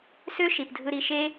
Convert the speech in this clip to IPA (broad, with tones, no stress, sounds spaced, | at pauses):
s ø˦ ʃ i˨ p dʱ ɯ˧ ɾ i˧ ʃ e˦